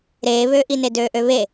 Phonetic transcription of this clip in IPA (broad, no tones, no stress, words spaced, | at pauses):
ɾeːβøːʔine døːʔøβe